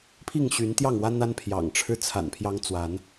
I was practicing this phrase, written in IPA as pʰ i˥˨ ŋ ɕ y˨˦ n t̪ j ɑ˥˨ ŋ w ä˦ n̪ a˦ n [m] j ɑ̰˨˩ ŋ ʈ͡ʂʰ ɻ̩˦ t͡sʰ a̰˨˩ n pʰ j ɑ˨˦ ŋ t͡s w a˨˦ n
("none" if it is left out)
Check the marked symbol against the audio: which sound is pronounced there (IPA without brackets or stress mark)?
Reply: pʰ